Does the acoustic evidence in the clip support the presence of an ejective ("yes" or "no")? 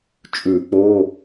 yes